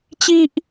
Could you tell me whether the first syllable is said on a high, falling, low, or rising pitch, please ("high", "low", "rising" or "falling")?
high